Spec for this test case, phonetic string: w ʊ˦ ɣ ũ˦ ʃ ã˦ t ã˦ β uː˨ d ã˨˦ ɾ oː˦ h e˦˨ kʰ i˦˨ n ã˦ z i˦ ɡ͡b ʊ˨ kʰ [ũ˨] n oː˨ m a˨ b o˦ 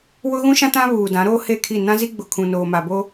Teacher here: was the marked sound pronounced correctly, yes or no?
yes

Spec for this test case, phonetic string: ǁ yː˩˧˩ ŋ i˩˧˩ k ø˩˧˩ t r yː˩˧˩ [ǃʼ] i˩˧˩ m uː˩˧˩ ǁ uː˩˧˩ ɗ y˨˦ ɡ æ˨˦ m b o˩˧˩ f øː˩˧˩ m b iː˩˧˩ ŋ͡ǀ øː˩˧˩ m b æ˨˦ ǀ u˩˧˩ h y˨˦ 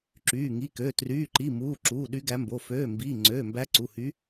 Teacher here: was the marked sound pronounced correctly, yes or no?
no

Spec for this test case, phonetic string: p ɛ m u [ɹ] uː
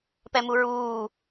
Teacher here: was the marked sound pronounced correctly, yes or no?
yes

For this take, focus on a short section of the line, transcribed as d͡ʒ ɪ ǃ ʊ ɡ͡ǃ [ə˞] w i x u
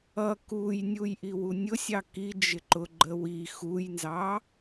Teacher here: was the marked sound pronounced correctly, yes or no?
no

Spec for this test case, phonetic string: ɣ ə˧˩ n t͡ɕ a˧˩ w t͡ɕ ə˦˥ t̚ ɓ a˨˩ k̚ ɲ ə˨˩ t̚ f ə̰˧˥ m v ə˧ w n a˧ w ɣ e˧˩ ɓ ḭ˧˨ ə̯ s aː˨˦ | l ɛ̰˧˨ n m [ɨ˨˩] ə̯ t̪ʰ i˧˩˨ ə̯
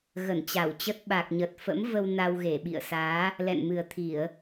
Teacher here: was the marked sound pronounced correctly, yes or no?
yes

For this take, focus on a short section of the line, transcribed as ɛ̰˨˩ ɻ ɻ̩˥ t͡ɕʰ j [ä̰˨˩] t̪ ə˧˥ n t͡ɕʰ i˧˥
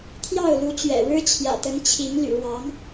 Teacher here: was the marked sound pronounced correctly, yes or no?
yes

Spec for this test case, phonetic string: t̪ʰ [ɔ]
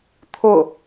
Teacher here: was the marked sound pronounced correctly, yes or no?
no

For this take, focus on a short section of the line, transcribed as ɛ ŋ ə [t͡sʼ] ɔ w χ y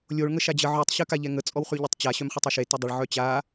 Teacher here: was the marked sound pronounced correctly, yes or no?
yes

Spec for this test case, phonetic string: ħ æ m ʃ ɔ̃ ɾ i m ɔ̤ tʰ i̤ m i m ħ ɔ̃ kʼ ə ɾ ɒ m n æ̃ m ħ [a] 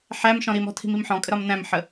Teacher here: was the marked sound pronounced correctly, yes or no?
no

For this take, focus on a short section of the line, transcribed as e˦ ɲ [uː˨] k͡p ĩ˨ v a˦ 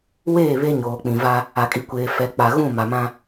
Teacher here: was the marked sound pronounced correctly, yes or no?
no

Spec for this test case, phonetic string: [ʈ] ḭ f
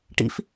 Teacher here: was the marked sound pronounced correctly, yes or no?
yes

